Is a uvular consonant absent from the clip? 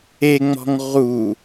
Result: no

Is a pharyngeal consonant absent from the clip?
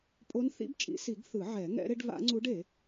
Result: no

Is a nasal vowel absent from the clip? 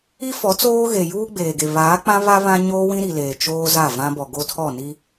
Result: no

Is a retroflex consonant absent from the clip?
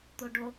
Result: no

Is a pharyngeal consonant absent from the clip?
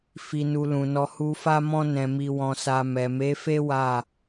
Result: yes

